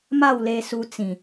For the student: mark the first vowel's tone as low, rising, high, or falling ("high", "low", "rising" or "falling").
falling